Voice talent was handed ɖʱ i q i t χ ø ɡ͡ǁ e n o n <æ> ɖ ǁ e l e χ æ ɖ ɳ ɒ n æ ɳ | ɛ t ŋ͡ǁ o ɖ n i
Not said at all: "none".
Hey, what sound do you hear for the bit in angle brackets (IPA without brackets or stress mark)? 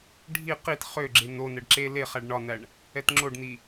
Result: ɛ